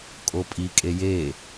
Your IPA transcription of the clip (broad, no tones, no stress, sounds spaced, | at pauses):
kʼ o pʼ i kʼ e j e